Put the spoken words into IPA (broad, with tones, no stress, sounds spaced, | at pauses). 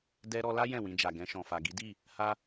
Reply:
d ɛ˧ ɾ ɔ˧ l a˦ j ɛ̃˦˨ w ĩ˧ d͡ʒ a˨ ɡ ɛ̃˧ ʃ ɔ̃˨ f a˨ ɡ i˨˦ d i˦˨ | h a˦